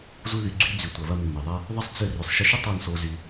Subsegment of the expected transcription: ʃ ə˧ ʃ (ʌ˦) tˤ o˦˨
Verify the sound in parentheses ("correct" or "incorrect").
incorrect